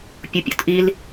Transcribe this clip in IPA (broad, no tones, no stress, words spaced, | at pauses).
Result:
pʲupʲo̰tʔil